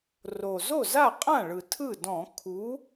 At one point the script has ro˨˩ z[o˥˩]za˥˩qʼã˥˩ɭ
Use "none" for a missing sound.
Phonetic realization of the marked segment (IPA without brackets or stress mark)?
o˥˩